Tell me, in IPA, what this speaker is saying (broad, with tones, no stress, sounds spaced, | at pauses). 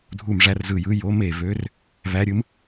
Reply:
dʱ u˧˩ m ʐ æ˧˥ r z ɯ˧˩ j ɯ˧˥ j o˧˥ m e˧˩ v ø˧˥ r | v æ˧˥ ɾʲ ɯ˧˥ m